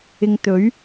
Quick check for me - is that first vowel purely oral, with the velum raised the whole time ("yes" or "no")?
yes